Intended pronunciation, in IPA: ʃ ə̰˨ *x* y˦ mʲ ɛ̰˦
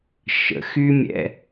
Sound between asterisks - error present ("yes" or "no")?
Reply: no